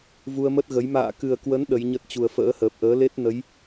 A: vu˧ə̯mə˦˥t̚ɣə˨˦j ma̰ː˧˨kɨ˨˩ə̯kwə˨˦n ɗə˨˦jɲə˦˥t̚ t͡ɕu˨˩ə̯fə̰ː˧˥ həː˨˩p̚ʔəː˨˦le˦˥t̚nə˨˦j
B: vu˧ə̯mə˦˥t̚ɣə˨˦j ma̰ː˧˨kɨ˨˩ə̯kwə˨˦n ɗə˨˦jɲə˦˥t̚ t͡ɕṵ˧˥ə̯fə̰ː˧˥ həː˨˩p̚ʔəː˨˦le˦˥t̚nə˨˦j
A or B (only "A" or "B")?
A